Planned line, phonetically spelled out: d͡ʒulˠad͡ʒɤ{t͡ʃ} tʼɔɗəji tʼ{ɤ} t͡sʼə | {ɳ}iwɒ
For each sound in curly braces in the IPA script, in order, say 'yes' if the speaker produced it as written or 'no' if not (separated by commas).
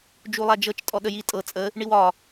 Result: yes, yes, yes